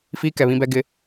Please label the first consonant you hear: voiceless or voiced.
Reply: voiceless